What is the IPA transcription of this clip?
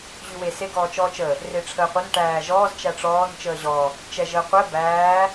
ʑ ʉ w e s e ɡ ɔː t͡ʃ ɔː t͡ʃ ə | r e ʈ͡ʂʰ əː qʷ ə n ʈ æː ʒ ɔː z t͡ʃ æ ʈ͡ʂ ɔː n t͡ʃ əː ʑ ɔ | t͡ʃ ɛ ʒ əː qʷ ɛ b æː

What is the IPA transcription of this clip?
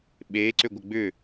ɓ e ǀ ʏ ɡʷ ə ɡ͡b ʏ

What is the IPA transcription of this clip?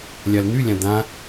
lʲ a l n̪ y lʲ ã d̪ ã

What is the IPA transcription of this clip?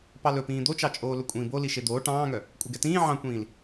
p ɑ l ɵ p ĩː d̪ o t͡ʃ ɑ t͡ʃʼ oː l ɵ kʷʼ ĩː b o l i ʃ e d̪ oː ʈ ɑ̃ː ŋ œ | kʷʼ i ɡ ɛ t ĩː ʕ ɑ̃ kʷ ĩː l

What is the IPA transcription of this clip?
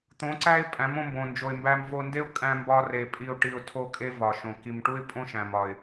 t̪ õ˨˦ ǀ æ˦ ɪ̯ pʼ æ̃˨˦ m õ˧ m b õ˨ n d͡ʒ o˨ ɪ̯ m b æ˧ m v o˧ n d e˦ ʊ̯ kʼ æ̃˧ m b ɒ˧ r e˨ pʼ i˧ ʊ̯ ʈ i˧ ʊ̯ tʰ o˦ kʼ e˦ v ɒ˨ ʃ õ˨ k i˨ m ʈ u˦ ɪ̯ pʼ õ˦ ʃ æ̃˨ m ɒ˨ ɪ̯

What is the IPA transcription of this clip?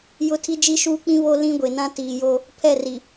j ʊ˦ tʰ i˦ d͡ʒ i˦ ʃ uː˦ k͡p ĩ˦ β o˦ l ĩ˦ ɡʷ e˨ n ã˦ t iː˨ j o˦ | pʰ ɛ˦˨ r i˨

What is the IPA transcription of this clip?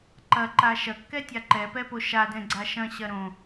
ǃ ɐ ǃ a ʃ ɐ kː ɛ tʲ a ǃ ɛ p ɛ p o ʃ a d ɛ̃ ɡ͡ǀ a ʃ ɐ̃ ɕ ɐ ɾ õ

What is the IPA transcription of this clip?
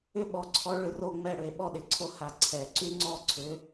ʏ˦ ɓ ɔ˨ ǀʰ ɔ˨˦ ɭ ʏ˨˦ r o˦˨ ŋ͡m ɛ˦˨ ɽ ʏ˨˩˦ e̯ ɓ ɔ˦˨ ɗ ɪ˨˩˦ ǀʰ o˦ h a˨ ǀʰ ɛ˨˩˦ ǀ y˦ ŋ͡ǀ ɔ˦˨ ǀʰ ʏ˨˦

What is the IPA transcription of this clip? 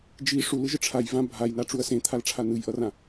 d͡ʒ i ʂ u l ɯ ʒ ɯ ʈ͡ʂʰ a j v ã bʱ a j n a ʈ͡ʂ u ɐ̯ s ẽ t̪ʰ a l ʈ͡ʂʰ a n ɯ j ʔ ʌ r ã

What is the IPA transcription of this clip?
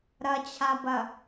ɾ ɐ t͡ɕʰ a b ɐ

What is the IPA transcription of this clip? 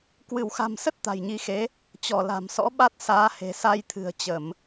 k w ɨ˧˩ w x a̤˨˩ m s ə˦˥ t̚ t̪ a̤˨˩ j ɲ i˨˦ x e˨˦ | t͡ɕ ɔ˧˩ l a̤˨˩ m s ɔ̰˧˥ ɓ a˦˥ t̚ s aː˨˦ h e̤˨˩ s a˧ j t̪ʰ ɨ̤˨˩ ə̯ t͡ɕ ə˧˩˨ m

